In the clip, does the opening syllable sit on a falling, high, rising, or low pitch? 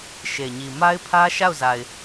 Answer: low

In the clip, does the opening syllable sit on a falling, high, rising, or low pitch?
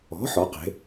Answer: rising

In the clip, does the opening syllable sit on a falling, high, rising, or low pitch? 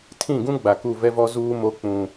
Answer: falling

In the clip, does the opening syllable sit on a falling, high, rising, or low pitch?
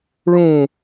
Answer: falling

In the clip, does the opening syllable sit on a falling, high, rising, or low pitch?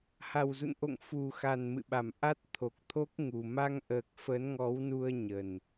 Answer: low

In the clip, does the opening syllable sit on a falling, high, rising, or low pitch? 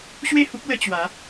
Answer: falling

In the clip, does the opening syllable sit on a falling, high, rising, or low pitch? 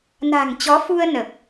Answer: low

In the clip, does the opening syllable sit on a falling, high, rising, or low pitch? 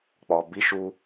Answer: low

